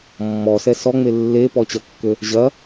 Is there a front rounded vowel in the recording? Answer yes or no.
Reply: yes